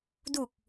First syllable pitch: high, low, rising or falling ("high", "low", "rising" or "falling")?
low